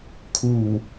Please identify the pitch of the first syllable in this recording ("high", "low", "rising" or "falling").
low